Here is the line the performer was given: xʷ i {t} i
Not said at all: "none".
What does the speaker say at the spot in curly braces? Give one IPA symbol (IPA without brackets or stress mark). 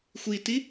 t